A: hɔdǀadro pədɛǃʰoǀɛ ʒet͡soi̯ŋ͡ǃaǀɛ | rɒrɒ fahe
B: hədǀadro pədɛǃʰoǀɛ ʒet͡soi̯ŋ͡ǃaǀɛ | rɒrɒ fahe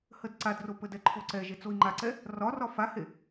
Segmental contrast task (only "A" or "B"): B